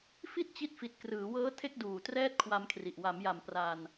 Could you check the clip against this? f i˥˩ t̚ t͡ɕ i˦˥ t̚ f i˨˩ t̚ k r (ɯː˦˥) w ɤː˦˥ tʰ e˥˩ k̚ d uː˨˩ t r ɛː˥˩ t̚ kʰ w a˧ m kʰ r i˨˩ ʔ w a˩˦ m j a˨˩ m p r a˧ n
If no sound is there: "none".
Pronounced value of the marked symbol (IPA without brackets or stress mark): ɯː˩˦